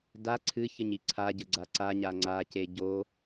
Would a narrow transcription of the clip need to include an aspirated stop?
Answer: yes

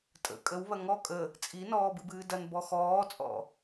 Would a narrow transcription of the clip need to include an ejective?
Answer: yes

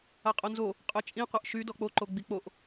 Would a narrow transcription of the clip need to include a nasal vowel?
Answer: yes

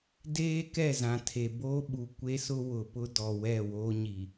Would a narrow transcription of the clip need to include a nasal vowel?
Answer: yes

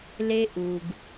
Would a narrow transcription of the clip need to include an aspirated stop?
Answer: no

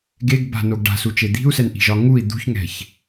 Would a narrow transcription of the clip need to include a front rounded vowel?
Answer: no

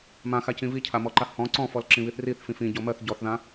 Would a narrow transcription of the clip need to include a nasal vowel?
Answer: yes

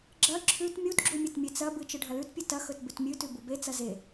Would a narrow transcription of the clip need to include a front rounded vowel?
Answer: no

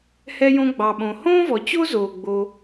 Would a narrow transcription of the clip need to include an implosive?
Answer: yes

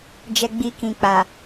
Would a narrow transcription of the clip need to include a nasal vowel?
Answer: yes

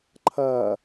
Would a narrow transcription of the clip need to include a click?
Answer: yes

